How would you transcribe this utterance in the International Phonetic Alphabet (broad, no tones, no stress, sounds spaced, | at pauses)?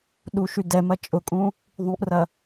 ɗ u ʃ y d ɛ m ɐ t͡ʃʼ ʊ kʼ ũ | ðˤ ũ ʔ r ɐ